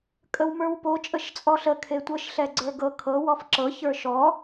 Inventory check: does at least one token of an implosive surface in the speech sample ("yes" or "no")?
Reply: no